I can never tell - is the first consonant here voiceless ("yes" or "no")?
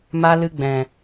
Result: no